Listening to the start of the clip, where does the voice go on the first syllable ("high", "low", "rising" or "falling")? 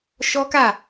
high